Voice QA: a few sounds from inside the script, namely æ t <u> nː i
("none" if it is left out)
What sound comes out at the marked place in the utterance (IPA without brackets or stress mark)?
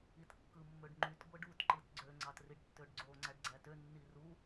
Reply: ø